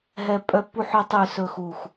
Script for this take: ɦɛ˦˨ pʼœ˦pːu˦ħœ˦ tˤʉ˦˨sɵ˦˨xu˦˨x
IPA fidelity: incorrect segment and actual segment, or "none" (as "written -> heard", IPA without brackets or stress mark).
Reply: none